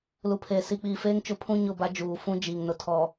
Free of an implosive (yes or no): yes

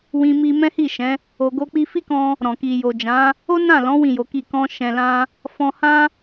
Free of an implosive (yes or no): yes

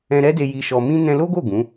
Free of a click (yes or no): yes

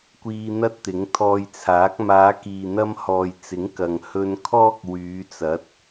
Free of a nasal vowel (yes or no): yes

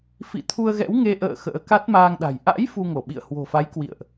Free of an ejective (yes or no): yes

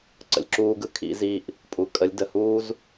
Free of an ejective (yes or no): no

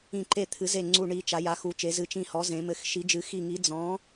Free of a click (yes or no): no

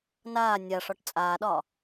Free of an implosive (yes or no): no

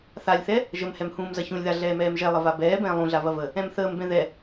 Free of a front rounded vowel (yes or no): yes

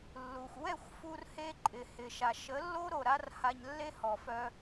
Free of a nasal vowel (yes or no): yes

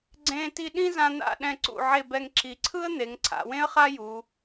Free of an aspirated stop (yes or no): no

